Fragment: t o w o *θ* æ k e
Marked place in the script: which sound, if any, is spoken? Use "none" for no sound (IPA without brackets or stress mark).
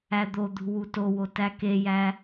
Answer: t